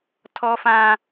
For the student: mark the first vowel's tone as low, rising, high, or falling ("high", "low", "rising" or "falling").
high